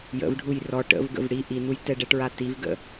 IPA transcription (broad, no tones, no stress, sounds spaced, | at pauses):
j ə̰ v ɖʱ u j r ɔ ʈ ə̰ v ɡ ə̰ v ɽ i ʔ i n u j t ɛ ɖ ɛ ʈ ɹ a t i v ɡ ə̰